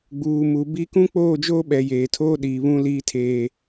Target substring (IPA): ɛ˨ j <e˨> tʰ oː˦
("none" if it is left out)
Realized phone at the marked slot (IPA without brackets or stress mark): eː˨